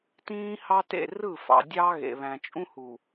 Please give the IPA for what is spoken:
tĩː˦hɑ˦tḛ˦˨ rɯ˦˨fɑ̰˨dʲɑ˦ ɣḛ˨βæ̃˨t͡ʃʼũ˦ hu˨

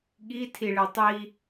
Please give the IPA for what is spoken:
ɠitʰiɭe tˤi

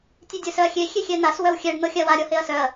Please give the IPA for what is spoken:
tʲedʲʊsœɐ̯xʲe xʲexʲɛn̪as wœwxʲɛɖ n̪ɤxʲawa ɾʲɔheɐ̯sœɐ̯

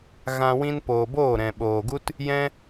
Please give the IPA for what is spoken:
ɣã˧ wĩ˧npoː˨boː˦˨ ɾɛ̃˨ ɓoː˨ɡu˦t | jɛ̃˦

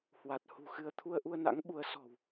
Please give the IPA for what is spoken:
hwa˨˩t̚hṳ˨˩xɨ˧ə̯ t̪ʰu˧ə̯ʔu˧ə̯na̰˧˥ŋɓu˨˦ə̯ sɔ̤˨˩w

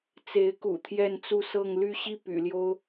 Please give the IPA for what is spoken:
t͡se˧˥ɪ̯kṵ˨˩ t̪ʰjɛ˥˧nt͡su˥˧sɤ˥˧ŋ ly˥˧ɕi˥˩ py̰˨˩ljo˥ʊ̯

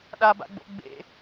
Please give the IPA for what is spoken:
ɗaba̰ɡ͡bo̰ ɡ͡bḛ

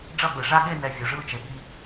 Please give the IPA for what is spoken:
ɖ͡ʐʌ˥˩ɠɯ˩ʐa˥˧ɠe˥˧ nɛ˧ vʲo˩ ʐɯ˥˩t͡ʃe˩ɠi˧

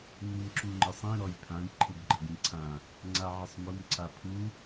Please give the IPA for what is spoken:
nimǁuŋ͡ǃɪsˤĩ ɾɔjpʰãj ǃʰɪbɡ͡ǃəɡĩǀʰã | ŋ͡ǀaʕɪsˤmʊm ǀapʰu

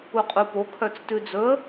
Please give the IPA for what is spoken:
uqʼupo kʰœt͡stʉd͡zɵə̯

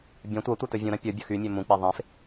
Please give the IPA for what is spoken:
bʲɐ̃ tʷɐtʷɐ tɵvʲũɾɐ̃ pʲʊ bʲɵxymʲɵ mũk͡pe ðˤẽf

